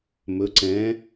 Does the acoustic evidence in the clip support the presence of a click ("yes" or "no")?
yes